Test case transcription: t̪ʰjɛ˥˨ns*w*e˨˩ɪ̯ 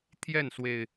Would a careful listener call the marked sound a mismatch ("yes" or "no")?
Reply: no